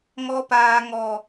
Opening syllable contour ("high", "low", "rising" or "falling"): high